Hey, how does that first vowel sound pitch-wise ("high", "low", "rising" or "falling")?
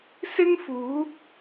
high